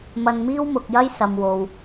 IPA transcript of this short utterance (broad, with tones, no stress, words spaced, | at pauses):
mɐ˧nmiː˥wmʊ˨k̚jɐ˥j sɐ˨mwo˨w